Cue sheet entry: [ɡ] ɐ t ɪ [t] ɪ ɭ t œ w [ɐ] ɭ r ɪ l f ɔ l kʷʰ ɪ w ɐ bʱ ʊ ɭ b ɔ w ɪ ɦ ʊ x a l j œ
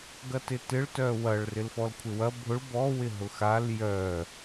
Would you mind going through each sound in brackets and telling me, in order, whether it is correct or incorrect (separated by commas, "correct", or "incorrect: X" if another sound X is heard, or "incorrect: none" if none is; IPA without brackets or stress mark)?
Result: correct, correct, correct